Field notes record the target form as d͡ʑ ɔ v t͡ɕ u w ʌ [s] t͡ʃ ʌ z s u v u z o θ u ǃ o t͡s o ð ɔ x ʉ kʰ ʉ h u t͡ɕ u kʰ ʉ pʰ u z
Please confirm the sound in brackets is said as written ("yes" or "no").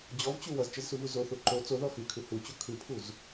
no